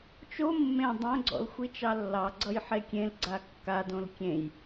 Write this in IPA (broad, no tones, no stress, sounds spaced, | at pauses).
t͡ʃ o mː ẽ dˤ õ ɡ͡ǀ ɔ̰ l xʷ i t͡ʃ ɑ lː ɑ ɡ͡ǀ ʌ j ħ e kʲ ẽ l ɡ͡ǀ a kː a d õ l kʲ ẽ j